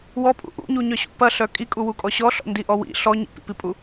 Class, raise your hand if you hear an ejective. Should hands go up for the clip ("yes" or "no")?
yes